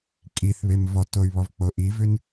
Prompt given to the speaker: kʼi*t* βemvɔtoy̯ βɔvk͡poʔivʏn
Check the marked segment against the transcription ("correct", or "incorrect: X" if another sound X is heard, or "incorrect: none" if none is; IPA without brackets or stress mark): incorrect: θ